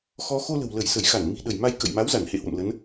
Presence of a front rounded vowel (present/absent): absent